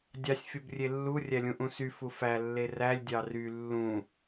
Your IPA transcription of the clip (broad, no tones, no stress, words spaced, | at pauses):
dʲɑsʲ fʲobrʲelːu rʲælʲũʔũsy fufæ lːerælʲ dʲɑry lːũ